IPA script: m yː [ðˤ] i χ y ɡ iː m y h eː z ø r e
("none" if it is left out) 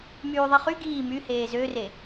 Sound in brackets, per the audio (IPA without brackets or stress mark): ðˤ